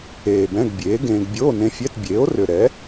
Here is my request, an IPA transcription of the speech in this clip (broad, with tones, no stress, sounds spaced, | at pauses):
eː˨˩ b ɛ̃˧˥˧ ɡ bʲ eː˩˥ ɡ ẽː˧ ɡ bʲ oː˧˥˧ n ẽ˧ fʲ ɛ˧˥˧ t bʲ eː˩˥ o̯ r ʏ˨˩ ɾ ɛ˩˥